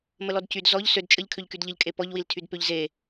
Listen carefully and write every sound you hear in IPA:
m ə l ɔ d c y d z ɔ ʎ s ø d t͡ʃʼ ə ʎ kʰ ø ʎ k y d ʎ ə ʎ kʼ e p ɔ ʎ w i l tʰ y d p ø ʎ z e

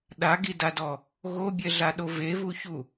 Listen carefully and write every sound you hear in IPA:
ɗ a ɡ i d a d ɔ | ɣ o bʲ ɛ ɮ a ɗ o v e v u ç u

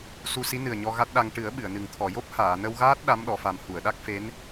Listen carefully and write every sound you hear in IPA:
s u˧ s i˧˥ n ɨ˨˩ ə̯ ɲ ɔ˧ ɣ a˦˥ t̚ ɗ a˧ ŋ ʈ ɨ˨˩˦ ə̯ ɓ ɨ˨˩˨ ə̯ n ɨ˨˩ ŋ t̪ʰ ɔ˨˩˨ j o˦˥ p̚ h aː˨˩˨ n ə˧ w ɣ aː˦˥ t̚ ɗ a˧˥ m ɗ ɔ˨˩˨ f a˨˩ m h u˨˩˨ ə̯ ɗ a˦˥ k̚ f e˧˥ n

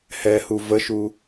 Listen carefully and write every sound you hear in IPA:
h ɛ h u v ə ʃ u

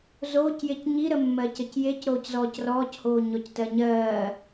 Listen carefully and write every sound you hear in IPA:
z oː c j e c ɲ i ɾ ə mː ɜ c ə c j e c ɾ oː c z ɔː c r ɔː c h oː ɲ ɔ c t ɜ ɲ ɜː

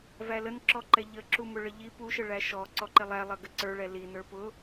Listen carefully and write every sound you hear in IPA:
v æ l ə n ǁ ɔ ǃ ɛ ʎ ə ǁ u m ʊ ɭ ə ʎ i p u ʃ ə ɭ æ ʃ ɔ ǀ ɔ ǃ ɪ lˠ æ lˠ ʌ ɡ ə ǀ ə˞ ɭ ɛ l i n ə˞ p ʊ

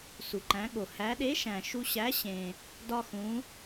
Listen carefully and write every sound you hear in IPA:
s u˩ ǃ æ̃˩˧ ɠ o˩ h æ˩˧ ɗ e˨˥ ʃ æ̃˩ ʃ u˧ ɕ æ˨˥ ɕ ẽ˩ | d ɒ˧ x ũ˩˧

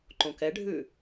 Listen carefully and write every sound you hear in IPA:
ǃ õ k ɛ ɖʱ ʉ

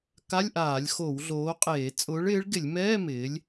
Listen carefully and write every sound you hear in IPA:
k a˧˥˧ lʲ ʔ aː˧˩˧ lʲ x o˧˩˧ w ɮ oː˨˥ qʼ eː˧˩˧ t͡sʼ ʊː˨˥ ɭ ɪː˨˥ ɭ ɡ ɪ˧˩˧ lʲ m ɛː˧˥˧ m ɪː˨˥ lʲ

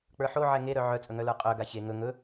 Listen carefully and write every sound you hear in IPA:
k͡p ə˞ ħ o ʕ ɛ ŋ e ɾ œ ʕ œ t͡sʼ ɵ ŋ œ l ə˞ qʼ œ ɡ a ç e ŋ ɵ ŋ ɵ

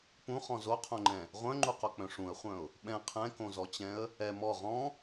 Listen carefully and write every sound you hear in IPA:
p ũ χ ɔ̃ z o qʰ õ ŋ͡ǃ ɛ̃ | ʁʷ œ̃ ŋ͡ǃ u q o k͡p œ̃ ʂ ũ ə̯ χʷ œ̃ ʊ̯ | ɓ ɛ̃ qʰ ɛ̃ k õ z ɔ t͡ɕ ɛ̃ ə̯ | ɛ m ɔ ʁ ɔ̃

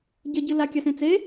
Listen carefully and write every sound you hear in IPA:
ɟ ɐ ɟ ɨ l a kʲ a s ẽ t͡s e

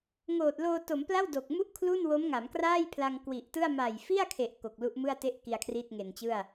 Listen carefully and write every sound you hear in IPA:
ŋ oː˨˩ t̚ l oː˧ t o˩˦ m p l a˥˩ w d o˨˩ k̚ m u˥˩ ʔ kʰ l u˥˩ n w o˦˥ m ŋ a˩˦ m k r aː˥˩ j pʰ l a˧ ŋ k w i˨˩ ʔ t ɯ˥˩ a̯ m a˨˩ j f i˥˩ a̯ kʰ e˨˩ ʔ k o˨˩ k̚ l u˦˥ ʔ m ɯ˥˩ a̯ t e˥˩ ʔ k i˧ a̯ kʰ r iː˥˩ t̚ ŋ e˨˩ n t͡ɕ ɯ˥˩ a̯

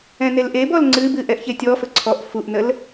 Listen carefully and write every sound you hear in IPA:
ɛ̃ n e l ʔ e b ɔ l ŋ͡ǀ ɨ b ɨ ʔ ɛ ʔ ç e tʲ ɔ f ə ǀʰ ɔ ʔ f u ʔ n ə l

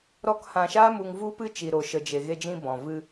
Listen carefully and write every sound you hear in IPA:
ɾ ɔ˦ k h ã˧ ʃ aː˦ m u˧ ŋ v u˦ p ɨ˦ t͡ʃ i˧ ɾ o˧ ʃ ə˧ d͡ʒ e˨ ɣ e˧ d͡ʒ ĩ˧ b ɔ̃˨ v ɨ˧

